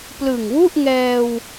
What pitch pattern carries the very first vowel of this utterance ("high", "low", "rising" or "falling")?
low